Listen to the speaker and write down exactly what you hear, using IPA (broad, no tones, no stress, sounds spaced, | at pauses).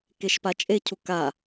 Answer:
k e ʃ p a t͡ʃʼ e cʰ u k a